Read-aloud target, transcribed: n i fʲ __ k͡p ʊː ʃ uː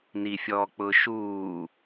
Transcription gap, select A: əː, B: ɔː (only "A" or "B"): B